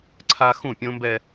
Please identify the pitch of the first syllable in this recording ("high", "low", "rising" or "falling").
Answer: high